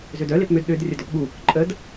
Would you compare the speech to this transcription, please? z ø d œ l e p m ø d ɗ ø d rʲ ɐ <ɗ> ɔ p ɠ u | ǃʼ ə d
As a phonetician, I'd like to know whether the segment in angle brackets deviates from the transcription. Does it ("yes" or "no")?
yes